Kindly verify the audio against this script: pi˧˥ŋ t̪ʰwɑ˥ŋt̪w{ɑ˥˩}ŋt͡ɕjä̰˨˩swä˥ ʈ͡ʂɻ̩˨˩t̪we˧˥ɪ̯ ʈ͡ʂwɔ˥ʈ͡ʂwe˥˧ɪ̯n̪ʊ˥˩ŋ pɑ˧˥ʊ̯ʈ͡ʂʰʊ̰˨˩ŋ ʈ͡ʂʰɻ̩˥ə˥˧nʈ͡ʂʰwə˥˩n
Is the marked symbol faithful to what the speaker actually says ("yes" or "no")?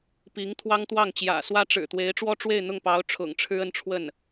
yes